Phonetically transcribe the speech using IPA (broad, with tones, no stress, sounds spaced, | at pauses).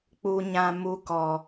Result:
k͡p u˧ ɲ ã˧ m u˧ k ɔ˨